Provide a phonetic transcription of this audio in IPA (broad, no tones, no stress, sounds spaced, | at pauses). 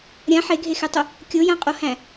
ɾʲ ã ħ e ɡʱ e x e tˤ ʊ | kʲ o j ã qʼ o h æ̃